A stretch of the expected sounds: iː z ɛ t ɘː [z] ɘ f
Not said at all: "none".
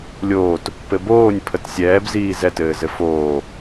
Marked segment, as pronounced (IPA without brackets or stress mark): z